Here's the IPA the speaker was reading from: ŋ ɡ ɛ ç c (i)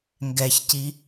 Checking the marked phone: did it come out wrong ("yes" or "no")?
no